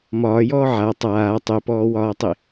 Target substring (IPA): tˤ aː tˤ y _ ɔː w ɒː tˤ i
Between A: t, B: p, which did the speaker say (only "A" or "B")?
B